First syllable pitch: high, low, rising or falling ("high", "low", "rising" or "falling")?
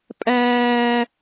high